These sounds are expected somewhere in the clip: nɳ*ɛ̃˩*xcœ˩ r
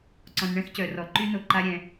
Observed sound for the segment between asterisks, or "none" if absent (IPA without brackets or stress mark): ɛ̃˥